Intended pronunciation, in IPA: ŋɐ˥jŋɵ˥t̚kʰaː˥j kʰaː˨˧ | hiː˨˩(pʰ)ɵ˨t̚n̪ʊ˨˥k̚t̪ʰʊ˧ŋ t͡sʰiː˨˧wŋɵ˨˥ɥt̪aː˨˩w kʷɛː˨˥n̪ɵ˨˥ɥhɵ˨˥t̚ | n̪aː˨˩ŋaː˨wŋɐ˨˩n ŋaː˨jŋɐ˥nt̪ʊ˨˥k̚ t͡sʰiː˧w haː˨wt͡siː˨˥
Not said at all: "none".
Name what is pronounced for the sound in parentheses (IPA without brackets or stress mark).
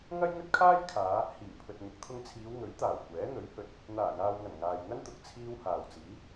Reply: pʰ